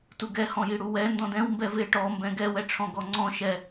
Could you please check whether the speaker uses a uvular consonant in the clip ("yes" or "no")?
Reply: no